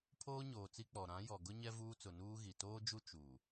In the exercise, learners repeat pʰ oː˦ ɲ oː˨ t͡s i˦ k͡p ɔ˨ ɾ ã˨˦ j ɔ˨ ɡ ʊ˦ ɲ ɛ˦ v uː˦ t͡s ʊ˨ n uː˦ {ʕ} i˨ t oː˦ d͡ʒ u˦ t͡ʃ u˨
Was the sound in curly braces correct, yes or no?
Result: no